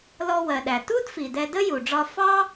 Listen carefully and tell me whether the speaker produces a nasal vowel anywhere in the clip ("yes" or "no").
no